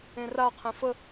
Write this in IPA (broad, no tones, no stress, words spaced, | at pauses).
ẽraqʰẽ fə